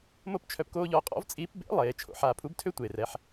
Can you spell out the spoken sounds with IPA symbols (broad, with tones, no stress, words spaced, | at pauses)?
mo˥pt͡ʃʰœ˧pkoː˥ʎɔ˧˥ qʼɔ̰˧˥vt͡sʼiː˧˥pbḛ˧˥ lˠeː˩˧t͡ʃʰo̰˧ħaː˧ pʰu˧˥btʰø˥tʷeː˩rɛ˩˧ħ